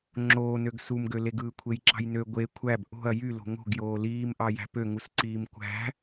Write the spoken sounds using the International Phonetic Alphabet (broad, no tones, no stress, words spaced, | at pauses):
ŋ͡ǁoːnøɡ sumɡøleɡ ɯːkʷʰejǁɑ̤jnø ɡʷe kʷʰæb ʔo̤ɐ̯ jylo̤ ŋo̤ɡjoː liːm ʔɑjæ̤pø ŋusǀiːmkʷæ̤